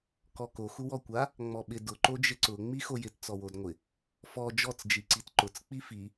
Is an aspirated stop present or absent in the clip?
absent